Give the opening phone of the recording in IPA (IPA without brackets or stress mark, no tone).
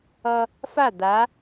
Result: ʌ